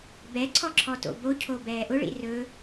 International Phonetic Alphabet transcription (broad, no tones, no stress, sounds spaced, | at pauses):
b ɛ ǀʰ ɔ ǁʰ ɔ t o̰ b o cʰ o b ɛː ʔ ʊ ɭ ḭ r ɵ